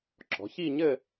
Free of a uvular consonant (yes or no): yes